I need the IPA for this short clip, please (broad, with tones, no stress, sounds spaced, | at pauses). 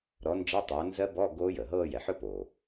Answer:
ɾ ɔ˨˥ n d͡ʒ ɤ˧˥˧ tˤ oː˨˥ n z ɜ˦˥ b ɔ˧˥˧ ɡ oː˦˥ j ə˩ ɦ ɤː˥˧ j ɛ˩ ħ ɵ˥˧ p o˩